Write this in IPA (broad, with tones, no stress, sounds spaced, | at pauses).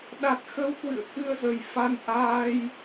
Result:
ɗ a˨˩ t̚ x ə˧ w k w ɨ̰˧˨ ə̯ k ɨ˧ ə̯ z ə˨˩ j f a˧ n ʔ aː˧ j